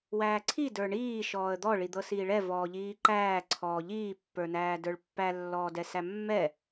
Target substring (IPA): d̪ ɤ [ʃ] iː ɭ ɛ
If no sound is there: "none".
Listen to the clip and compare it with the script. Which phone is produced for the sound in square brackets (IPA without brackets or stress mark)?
s